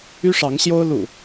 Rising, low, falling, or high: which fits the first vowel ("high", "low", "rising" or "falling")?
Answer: high